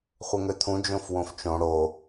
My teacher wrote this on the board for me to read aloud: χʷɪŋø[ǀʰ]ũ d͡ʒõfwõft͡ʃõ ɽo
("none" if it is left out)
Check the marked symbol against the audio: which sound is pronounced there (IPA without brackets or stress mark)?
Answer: t̪ʰ